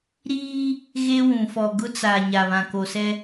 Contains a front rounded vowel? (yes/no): no